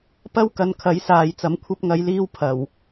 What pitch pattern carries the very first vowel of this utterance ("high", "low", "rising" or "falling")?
high